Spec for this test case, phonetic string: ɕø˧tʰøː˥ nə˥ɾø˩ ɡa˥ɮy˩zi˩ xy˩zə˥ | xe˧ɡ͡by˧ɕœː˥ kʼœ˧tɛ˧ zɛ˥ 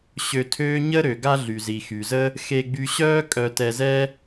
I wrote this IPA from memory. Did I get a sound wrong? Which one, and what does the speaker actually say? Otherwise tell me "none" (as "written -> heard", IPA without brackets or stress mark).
n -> ɲ